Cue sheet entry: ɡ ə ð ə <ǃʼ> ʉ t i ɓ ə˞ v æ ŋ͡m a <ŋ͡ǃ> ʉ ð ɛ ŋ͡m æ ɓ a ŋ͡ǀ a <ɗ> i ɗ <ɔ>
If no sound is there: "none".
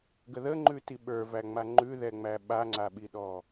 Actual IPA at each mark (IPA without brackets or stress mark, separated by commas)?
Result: ŋ͡ǃ, ŋ͡ǃ, ɓ, ɔ